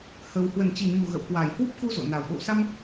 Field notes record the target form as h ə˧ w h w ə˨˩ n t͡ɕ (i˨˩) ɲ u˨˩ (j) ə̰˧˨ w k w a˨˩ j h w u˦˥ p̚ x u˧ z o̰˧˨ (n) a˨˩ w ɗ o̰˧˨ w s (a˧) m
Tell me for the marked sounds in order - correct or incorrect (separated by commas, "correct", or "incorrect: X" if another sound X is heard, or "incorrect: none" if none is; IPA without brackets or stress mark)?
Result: correct, incorrect: ɣ, correct, correct